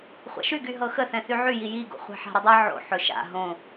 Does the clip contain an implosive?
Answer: no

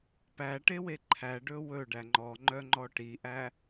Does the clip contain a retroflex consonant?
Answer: yes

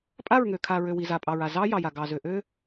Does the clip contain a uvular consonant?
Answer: no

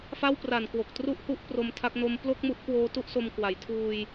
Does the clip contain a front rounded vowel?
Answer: no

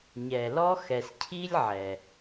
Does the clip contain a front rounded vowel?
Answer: no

